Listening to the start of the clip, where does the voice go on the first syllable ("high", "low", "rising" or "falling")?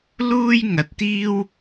high